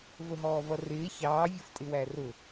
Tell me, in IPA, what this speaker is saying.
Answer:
v ə ɦ ɔː v ʌ r ɪː ç ɑː vʲ ʊ f tʼ ɪ w æ r ʊ

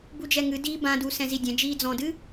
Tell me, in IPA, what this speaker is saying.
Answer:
b u d͡ʒ ɛ ŋ ɨ d iː b ã d u s ɛ̃ z i dʲ ɛ̃ d͡ʒ iː d͡z ɔ̃ d ɨ

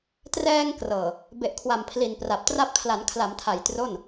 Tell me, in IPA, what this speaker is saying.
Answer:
t r ɛː˧ ŋ k r ɤː˨˩ | b e˨˩ ʔ kʰ w a˨˩ m pʰ l i˨˩ n p r a˨˩ p̚ t r a˦˥ p̚ kʰ l a˩˦ n kʰ l a˩˦ m tʰ a˨˩ j t r o˥˩ n

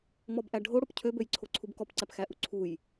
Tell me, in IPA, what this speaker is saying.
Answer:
m ɔ b ʔ æ ɖʱ o ɽ o p cʰ ø b ø j ǀʰ o ǀʰ u b k ɔ p ǀ æ p x æ ʔ u ǀʰ u j

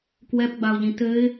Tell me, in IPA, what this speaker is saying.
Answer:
k w ɛ p ɡ͡b a ʊ̯ ʎ ĩ t ɘ ɪ̯

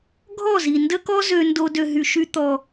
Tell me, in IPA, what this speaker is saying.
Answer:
ɡʱ ɔ˦˨ z i˨ n d ə˦ k ɔ˦ z ø˧ n d o˧ d ø˨ ɦ y˨ ʃ y˧ t̪ ɔ˨

